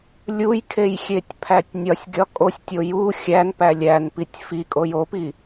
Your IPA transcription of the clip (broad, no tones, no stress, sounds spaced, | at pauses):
lʲ u j kʰ e j xʲ e tʲ pʰ æ tʲ nʲ ɒ sʲ ɡʲ ɒ kʼ o sʲ tʲ o j u xʲ æ n p æ lʲ æ n p i tʲ f i kʼ o j o p i